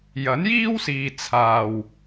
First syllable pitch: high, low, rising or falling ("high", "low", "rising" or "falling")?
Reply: rising